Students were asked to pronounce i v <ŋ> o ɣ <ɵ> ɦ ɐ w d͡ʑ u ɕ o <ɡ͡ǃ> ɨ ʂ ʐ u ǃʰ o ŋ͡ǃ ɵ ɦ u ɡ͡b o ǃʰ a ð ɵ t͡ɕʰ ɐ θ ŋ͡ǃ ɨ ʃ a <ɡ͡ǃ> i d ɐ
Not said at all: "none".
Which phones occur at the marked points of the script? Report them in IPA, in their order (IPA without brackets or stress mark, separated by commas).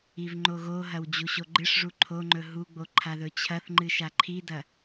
ŋ͡ǃ, o, ɡ͡ǃ, ǃʰ